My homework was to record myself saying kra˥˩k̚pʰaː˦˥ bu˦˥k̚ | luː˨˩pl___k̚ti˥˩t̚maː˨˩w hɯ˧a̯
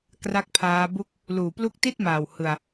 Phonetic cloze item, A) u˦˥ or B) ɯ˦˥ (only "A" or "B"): A